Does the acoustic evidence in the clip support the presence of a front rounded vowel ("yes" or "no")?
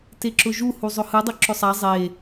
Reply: no